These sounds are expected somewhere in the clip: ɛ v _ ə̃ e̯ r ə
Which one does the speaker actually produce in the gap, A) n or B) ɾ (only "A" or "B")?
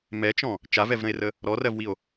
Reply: B